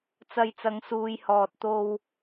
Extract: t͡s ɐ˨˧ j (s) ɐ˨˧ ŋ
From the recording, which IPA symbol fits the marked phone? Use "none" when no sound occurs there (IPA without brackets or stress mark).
t͡s